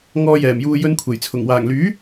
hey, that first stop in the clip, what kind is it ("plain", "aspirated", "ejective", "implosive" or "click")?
aspirated